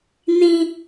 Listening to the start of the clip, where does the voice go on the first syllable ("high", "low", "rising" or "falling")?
high